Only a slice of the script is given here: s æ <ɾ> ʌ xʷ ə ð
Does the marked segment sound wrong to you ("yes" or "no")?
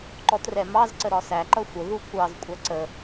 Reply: yes